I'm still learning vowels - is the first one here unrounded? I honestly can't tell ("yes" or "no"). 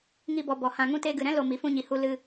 yes